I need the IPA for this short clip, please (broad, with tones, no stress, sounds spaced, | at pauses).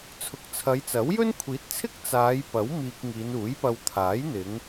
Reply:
t͡sʰ ʊ˨ k̚ t͡sʰ ɐ˨˧ j t͡s ɐ˨˥ w j ɵ˥ n kʷʰ iː˨˥ t̚ t͡sʰ ɪ˥ k̚ t͡s aː˨˧ j p ɐ˨˥ w m iː˧ k̚ ŋ iː˨˧ n uː˨˥ j p ɐ˧ w t̪ʰ aː˨˥ j n̪ ɪ˨˧ ŋ